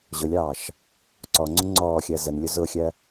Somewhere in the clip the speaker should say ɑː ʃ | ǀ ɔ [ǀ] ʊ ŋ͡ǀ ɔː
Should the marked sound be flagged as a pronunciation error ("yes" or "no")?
yes